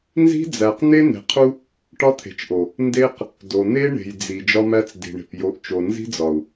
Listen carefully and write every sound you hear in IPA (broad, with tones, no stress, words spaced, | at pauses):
nzi̤˦d͡zæ˨qn̪e˦ n̪e̤˨qʰu˦ | ʈɒ˦t̪ʰe̤˨t͡ʃʔo˨ | nde˦q | do˨n̪e˦ɳe̤˨j d͡zi˨ d͡ʒɒ˦mæ˦t͡sdi̤˨ɳe̤˨p jo˨˦ʔ t͡ʃo˨nzi̤˦d͡zɒ˨u̯